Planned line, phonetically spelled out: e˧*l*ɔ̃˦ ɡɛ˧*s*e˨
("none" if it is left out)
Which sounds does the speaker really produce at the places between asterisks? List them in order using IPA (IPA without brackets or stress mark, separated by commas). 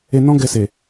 n, s